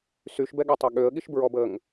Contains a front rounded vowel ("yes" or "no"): yes